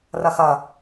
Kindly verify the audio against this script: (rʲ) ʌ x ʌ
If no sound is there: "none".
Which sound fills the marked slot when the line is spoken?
r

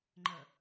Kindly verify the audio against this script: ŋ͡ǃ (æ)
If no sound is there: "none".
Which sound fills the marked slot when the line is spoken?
ə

